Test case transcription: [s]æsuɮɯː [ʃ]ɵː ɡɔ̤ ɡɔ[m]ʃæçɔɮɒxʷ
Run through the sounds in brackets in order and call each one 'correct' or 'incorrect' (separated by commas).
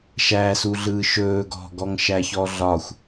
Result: incorrect, correct, incorrect